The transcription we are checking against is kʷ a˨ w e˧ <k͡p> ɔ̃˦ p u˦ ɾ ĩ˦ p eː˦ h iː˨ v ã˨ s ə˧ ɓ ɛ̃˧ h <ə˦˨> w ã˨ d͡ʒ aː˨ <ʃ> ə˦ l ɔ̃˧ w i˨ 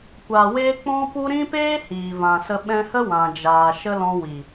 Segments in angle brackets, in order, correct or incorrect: correct, incorrect, correct

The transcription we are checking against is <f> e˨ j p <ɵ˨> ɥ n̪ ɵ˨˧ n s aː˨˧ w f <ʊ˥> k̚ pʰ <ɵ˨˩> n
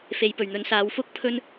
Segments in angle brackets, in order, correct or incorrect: correct, incorrect, correct, incorrect

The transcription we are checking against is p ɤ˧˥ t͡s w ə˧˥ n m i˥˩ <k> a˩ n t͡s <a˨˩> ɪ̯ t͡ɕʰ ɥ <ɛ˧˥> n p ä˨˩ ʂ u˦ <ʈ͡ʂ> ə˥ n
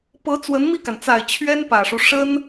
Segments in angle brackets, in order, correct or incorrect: correct, correct, incorrect, incorrect

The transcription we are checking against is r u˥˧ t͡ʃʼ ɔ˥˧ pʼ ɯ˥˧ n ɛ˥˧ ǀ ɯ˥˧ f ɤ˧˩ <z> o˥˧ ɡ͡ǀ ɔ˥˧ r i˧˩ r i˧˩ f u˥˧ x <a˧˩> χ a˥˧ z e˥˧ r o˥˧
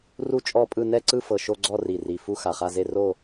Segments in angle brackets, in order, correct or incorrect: incorrect, correct

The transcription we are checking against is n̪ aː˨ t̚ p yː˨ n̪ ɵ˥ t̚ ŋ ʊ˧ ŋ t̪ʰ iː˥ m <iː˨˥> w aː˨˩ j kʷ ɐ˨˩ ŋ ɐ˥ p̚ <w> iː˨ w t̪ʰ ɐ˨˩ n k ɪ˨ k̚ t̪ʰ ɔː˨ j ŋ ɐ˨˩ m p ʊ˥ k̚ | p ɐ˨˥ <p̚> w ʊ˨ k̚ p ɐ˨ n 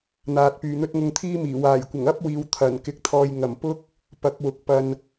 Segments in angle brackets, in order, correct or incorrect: incorrect, correct, incorrect

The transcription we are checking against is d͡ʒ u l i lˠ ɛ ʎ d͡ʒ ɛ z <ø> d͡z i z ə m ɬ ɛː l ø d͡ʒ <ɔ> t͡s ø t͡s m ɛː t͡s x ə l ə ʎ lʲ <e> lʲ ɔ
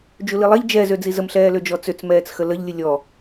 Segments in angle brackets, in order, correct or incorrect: correct, correct, incorrect

